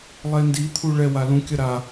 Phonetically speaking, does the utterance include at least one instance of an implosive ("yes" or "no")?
no